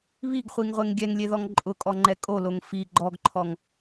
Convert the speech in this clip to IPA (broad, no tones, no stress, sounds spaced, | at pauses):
β i ɡ χʷ i ŋ ʁʷ e ŋ ɡʲ ɛ ŋ lʲ e ð ɔ ŋ ǃʼ ʊ kʼ ɔ ŋ͡ǃ ɛ kʼ o l o ŋ f i ɡ͡ǃ ɔ ɡ ǃʰ ɔ ŋ